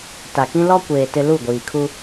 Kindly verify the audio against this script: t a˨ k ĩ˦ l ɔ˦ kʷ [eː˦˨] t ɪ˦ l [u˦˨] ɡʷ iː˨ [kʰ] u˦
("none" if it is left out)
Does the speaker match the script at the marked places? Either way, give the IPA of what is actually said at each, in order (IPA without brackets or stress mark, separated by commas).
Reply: eː˨, u˦˨, kʰ